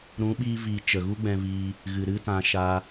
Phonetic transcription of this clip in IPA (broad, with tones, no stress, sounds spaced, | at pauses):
ɾ ũ˨˦ ɓ iː˧ v iː˨ t͡ʃ ə˨ ɣ u˦ ɡ͡b ɛ̃˧ v iː˧ | ɣ ɨ˨ ɾ ɨ˦ t ã˧ ʃ a˧